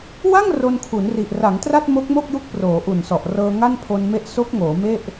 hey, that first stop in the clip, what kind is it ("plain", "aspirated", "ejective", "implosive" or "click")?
aspirated